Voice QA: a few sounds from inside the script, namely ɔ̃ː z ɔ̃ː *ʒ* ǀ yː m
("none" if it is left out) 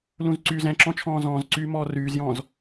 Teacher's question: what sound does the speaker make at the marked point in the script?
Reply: z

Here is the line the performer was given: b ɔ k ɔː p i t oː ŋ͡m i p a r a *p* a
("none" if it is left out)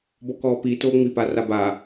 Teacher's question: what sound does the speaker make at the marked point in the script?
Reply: b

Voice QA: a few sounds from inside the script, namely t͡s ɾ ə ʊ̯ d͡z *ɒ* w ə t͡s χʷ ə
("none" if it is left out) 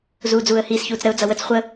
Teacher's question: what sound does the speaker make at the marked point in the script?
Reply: ʌ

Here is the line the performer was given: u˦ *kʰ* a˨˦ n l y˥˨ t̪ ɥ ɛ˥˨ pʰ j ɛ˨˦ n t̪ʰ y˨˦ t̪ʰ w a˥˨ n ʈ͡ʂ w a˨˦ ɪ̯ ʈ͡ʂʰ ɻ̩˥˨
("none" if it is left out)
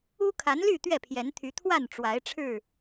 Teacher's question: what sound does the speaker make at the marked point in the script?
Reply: kʰ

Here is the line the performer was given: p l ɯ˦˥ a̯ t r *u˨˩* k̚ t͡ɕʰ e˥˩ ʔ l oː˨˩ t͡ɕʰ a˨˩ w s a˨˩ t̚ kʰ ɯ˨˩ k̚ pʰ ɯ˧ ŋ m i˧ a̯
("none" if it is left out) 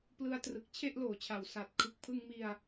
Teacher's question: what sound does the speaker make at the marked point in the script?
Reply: ɯ˨˩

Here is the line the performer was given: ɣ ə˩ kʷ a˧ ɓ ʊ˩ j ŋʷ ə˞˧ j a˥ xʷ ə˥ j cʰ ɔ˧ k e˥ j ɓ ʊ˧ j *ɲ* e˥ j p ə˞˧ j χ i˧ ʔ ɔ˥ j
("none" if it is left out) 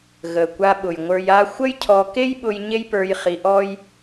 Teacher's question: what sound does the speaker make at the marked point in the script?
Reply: ɲ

